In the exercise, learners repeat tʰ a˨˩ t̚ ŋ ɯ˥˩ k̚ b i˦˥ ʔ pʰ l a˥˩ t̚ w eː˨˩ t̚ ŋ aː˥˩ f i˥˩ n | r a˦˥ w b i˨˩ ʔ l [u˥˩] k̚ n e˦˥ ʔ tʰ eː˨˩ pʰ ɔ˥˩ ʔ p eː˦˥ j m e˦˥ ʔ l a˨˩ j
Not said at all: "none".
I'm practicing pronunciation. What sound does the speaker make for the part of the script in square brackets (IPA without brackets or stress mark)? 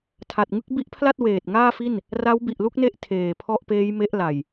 u˥˩